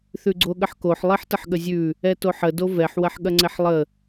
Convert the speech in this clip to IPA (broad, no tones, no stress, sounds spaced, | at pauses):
θ ʉ ɡ͡ǀ o ɠ ə ħ k o ħ lˠ i ħ t ə ħ ɠ ə zʲ ʉ | ɛ t o ħ ə d o v ɛ ħ w ɐ ħ ɠ ɐ ŋ͡ǀ ɛ ħ lˠ ə